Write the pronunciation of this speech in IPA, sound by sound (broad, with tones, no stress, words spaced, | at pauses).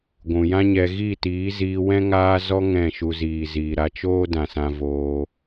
ɡʷũ˨jã˦ɲɛ˧ ɣi˦˨tiː˨˦ziː˧ wɛ̃˦ŋaː˦zɔ˦ ŋɛ̃˦˨ʃu˧ ziː˨ziː˨ɾa˧ t͡ʃoː˦dã˨sã˧ voː˧